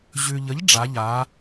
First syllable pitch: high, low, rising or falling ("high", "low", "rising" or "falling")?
low